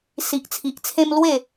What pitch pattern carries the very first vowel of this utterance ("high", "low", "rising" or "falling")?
low